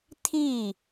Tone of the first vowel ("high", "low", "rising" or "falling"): falling